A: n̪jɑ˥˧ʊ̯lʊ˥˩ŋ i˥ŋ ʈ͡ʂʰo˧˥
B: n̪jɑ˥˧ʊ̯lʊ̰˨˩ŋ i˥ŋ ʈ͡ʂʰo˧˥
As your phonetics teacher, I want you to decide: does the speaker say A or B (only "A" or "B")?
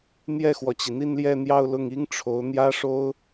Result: A